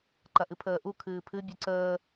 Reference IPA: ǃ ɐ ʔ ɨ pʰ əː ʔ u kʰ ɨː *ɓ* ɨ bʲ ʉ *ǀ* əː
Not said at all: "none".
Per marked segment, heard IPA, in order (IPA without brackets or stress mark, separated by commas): pʰ, ǀ